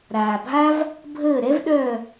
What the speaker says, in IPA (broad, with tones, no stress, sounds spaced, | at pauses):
ɾ aː˩ bʱ a˦ v | bʱ əː˧˩ ɾ ɛ˦ v ɗ œ˧˩